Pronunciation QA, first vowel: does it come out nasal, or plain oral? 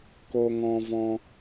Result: oral